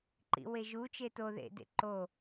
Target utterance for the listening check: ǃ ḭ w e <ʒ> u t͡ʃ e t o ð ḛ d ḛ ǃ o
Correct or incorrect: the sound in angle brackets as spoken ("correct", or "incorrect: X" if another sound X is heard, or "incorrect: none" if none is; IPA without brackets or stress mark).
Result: correct